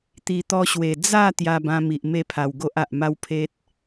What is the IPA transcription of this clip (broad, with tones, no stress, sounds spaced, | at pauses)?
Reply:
t̪ i˨˩ t̪ ɔ˧ ɕ w e˨˩ d͡z a˥˧ t̪ j a˧ b ã˧ m i˨ ʔ m e˥˧ pʰ a˨˩ w ɡ o˦ ʔ a˨ ʔ m a˦ w pʰ e˦ t̚